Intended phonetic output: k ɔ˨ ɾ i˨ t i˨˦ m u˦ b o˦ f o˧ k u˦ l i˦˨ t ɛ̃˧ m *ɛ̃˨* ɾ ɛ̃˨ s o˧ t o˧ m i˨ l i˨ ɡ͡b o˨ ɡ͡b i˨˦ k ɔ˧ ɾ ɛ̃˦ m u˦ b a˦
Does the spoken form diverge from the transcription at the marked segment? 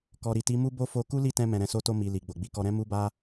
no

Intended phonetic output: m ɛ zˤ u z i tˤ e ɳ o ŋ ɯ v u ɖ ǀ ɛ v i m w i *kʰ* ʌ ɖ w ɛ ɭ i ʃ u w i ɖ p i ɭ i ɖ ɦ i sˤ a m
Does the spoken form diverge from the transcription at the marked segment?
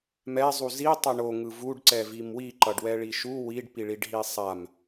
yes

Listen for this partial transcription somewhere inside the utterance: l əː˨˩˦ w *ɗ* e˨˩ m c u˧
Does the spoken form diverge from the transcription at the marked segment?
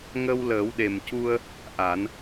no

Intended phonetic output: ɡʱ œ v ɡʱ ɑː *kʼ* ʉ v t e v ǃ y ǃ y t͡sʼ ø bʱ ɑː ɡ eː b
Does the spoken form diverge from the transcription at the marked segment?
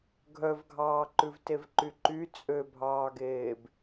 yes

